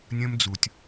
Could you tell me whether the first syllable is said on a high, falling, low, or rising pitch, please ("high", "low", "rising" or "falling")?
high